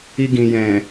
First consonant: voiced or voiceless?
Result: voiced